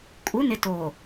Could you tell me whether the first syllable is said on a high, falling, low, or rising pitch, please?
rising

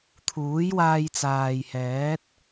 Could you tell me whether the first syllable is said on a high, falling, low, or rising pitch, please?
rising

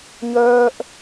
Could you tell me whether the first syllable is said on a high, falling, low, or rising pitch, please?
high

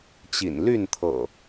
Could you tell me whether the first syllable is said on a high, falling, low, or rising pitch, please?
low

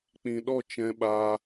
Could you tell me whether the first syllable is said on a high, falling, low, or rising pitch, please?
low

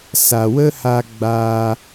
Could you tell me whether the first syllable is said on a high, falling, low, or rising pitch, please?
low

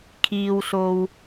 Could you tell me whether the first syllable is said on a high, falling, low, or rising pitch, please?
low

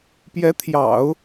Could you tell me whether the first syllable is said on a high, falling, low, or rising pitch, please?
rising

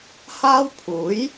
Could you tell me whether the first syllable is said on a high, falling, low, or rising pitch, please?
high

